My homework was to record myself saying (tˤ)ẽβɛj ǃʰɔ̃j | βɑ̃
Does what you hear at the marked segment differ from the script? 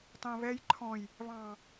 no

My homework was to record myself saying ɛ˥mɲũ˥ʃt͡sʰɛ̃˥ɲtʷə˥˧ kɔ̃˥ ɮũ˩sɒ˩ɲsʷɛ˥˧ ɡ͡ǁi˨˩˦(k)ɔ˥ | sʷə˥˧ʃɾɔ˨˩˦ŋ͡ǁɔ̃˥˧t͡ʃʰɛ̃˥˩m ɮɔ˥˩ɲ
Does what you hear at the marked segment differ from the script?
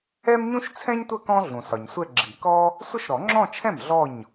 no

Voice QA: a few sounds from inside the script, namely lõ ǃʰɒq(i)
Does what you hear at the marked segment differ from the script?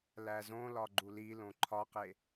yes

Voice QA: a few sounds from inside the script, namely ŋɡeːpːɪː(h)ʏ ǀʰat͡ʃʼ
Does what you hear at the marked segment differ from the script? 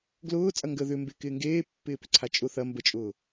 yes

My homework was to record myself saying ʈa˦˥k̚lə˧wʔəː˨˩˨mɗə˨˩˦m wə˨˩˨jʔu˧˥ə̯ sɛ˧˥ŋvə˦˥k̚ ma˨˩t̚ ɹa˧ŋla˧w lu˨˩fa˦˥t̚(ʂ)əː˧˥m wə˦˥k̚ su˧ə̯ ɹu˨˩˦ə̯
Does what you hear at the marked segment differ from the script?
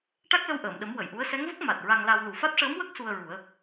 no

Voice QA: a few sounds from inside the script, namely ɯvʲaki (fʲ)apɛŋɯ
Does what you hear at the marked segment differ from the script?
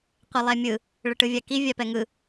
yes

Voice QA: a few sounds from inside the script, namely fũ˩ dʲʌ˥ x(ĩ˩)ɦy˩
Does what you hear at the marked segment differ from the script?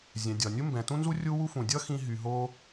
yes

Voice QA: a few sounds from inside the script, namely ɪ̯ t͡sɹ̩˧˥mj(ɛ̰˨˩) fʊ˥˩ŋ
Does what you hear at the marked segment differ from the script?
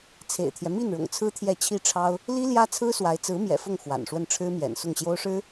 no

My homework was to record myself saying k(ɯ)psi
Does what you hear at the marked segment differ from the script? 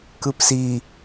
no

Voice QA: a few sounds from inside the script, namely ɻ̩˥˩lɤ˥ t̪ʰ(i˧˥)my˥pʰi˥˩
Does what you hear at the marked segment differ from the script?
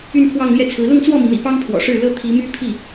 no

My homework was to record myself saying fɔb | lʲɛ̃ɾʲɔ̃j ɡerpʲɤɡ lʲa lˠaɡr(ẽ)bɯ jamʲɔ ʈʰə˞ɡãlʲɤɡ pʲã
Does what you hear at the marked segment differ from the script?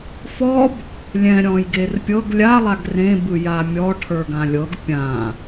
no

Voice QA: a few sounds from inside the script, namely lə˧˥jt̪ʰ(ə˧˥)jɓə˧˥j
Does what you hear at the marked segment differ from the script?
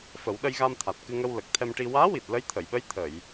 yes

